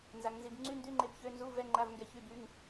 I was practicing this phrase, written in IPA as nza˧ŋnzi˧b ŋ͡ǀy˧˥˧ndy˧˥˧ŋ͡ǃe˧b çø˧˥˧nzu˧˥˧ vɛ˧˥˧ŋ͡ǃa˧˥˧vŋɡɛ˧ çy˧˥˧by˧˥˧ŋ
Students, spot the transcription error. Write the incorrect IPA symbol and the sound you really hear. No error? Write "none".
none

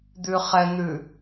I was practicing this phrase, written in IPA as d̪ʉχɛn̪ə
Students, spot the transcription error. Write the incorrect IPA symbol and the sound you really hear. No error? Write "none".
ə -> ʉ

